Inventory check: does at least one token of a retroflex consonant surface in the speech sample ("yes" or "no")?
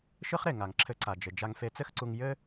no